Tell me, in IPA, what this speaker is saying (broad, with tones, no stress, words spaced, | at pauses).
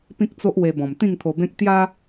pĩ˦k̚t͡so˦ʔwe˧bɔ̃˨˩m t̪ĩ˥˧ŋt̪ʰo˧bẽ˦k̚ t̪ja˦